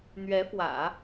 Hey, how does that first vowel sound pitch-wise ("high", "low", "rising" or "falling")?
rising